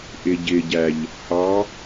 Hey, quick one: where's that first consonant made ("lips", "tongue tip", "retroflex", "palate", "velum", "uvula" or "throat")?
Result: throat